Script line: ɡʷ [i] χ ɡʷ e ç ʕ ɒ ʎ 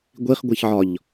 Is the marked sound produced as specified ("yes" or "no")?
yes